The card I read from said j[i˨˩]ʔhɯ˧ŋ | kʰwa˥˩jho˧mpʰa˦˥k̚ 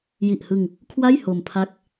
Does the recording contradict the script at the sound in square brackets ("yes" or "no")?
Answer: no